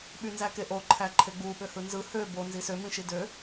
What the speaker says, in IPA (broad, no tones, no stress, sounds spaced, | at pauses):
ɓ y n z æ k e ʔ o ǃʰ æ ǃʰ e ɡ͡b u ɓ ø h ɯ n z ɯ h ø b o n z i s ø m ĩ ʃ i d ø